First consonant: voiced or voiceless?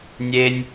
voiced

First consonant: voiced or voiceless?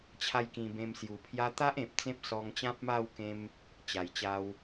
voiceless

